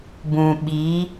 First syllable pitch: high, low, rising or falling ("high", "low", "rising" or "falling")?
low